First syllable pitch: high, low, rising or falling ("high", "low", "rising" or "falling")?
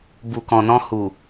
low